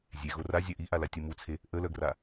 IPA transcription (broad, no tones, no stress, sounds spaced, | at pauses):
zʲ e ɣ o r a zʲ œ ʔ i ʔ a l a tʲ u m u t͡sʰ e | ʔ ə l œ ɡ r a